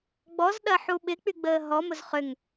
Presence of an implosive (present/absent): present